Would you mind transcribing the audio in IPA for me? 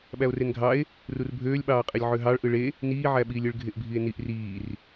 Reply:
ɓ æ o̯ r e n ɡʱ ɑ e̯ | r u r bʱ øː lʲ ɓ ɑː qʼ e lʲ ʕ ø ɦ ɑ ɭ ʔ ɯ ɭ e | n iː ʕ æ ɓ iː lʲ ɯ ɭ ɡʱ e ʔ bʱ i e̯ n i ʔ r iː r

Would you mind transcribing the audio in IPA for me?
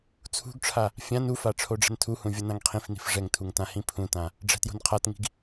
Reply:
t͡sʰ ṳ ɡ ʈ͡ʂʰ a | fʲ ã n u f a ʈ͡ʂʰ o ɖ͡ʐ ɛ̤ n tʰ u h ũ vʲ ʌ n ã ŋ qʰ ĩ f n i̤ f ʐ ɛ ŋ tʰ u ŋ t ã h ĩ pʰ ũ t ã | ɖ͡ʐ ɛ̤ t j o̤ n qʰ a t ŋ i̤ ɡ

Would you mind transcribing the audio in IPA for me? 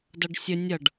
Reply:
d ʌ ɖ sʲ ə nʲ ʌ ɖ

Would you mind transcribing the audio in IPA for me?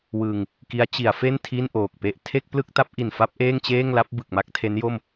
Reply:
w ɯ˧ ŋ | k i˦˥ a̯ t͡ɕ i˩˦ a̯ f e˥˩ n tʰ i˥˩ n ʔ oː˨˩ k̚ p e˥˩ ʔ tʰ e˥˩ k̚ p l ɯ˥˩ k̚ t a˦˥ p̚ ʔ i˨˩ n f a˥˩ p̚ ʔ eː˥˩ ŋ t͡ɕ eː˥˩ ŋ l a˦˥ p̚ b ɯ˨˩ k̚ m a˥˩ k̚ tʰ e˦˥ n j o˥˩ m

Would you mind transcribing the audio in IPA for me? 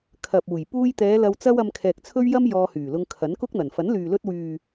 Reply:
kʰ ɐ˨ p̚ uː˨˩ j p uː˧ j t̪ ɛː˨˧ l ɐ˧ w t͡s ɐ˥ w ɐ˧ m kʰ ɛː˨ k̚ t͡sʰ ɵ˥ ɥ j ɐ˥ m j ɔː˧ h yː˨˩ l ʊ˧ ŋ kʰ ɐ˨˥ n k ʊ˥ k̚ n̪ ɐ˨˩ n f ɐ˨˥ n l yː˨ l ɵ˧ t̚ w yː˨

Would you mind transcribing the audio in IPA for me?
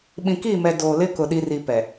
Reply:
ɓ ĩ˨ k iː˦˨ m ɛ˨ d oː˨ l ɪ˦ k ʊ˨ ɗ i˨ r i˨ p ɛ˨

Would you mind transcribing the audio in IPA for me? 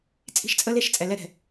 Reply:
t͡sʼ i̤˦ ʃ t͡sʼ ə˦ l e˦ ʃ t͡sʼ ɛ˨ l ɛ˦ ɾ ɛ̤˨

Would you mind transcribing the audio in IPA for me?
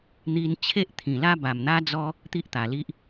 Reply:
n̪ i˧ n t͡ɕʰ e˦ ʔ t̪ʰ ĩ˨˩ l a˦ b a˨˩ m n̪ a˦ d͡z ɔ˦ | t̪ i˦ ʔ t̪ a˨˩ l i˦ ʔ

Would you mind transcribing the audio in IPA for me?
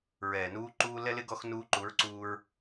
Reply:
ɹ ɛː˨ n uː˧ ǃ uː˧ l ɛ˧ l ɪ˧ ɡ ɔ˧ x n uː˧ ǃ u˨˦ ɹ ǀ uː˧ ɹ

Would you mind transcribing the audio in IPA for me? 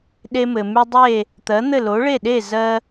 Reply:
ɗ e˧ m ɘ˩ m y˧ dˤ e˥˩ | t̪ ɜ˩˥ n̪ ɘ˥˩ l o˩˥ ɭ e˥˩ ɗ e˥˩ z ɜ˧

